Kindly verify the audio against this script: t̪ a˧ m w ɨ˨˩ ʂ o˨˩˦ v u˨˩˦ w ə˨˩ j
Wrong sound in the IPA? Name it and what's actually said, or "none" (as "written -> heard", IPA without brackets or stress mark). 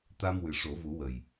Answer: none